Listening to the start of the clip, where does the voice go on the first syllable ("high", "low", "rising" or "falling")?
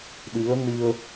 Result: rising